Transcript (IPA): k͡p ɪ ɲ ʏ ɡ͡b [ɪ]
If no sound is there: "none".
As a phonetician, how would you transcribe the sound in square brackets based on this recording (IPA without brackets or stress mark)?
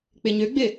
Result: ɪ